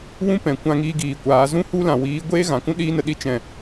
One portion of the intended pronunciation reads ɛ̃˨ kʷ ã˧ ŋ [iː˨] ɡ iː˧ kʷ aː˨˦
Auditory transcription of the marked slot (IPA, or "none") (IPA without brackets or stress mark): iː˧